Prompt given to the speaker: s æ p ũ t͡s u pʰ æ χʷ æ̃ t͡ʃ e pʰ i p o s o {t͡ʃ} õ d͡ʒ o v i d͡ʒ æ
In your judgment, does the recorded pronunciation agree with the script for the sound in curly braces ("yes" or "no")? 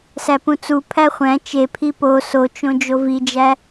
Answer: yes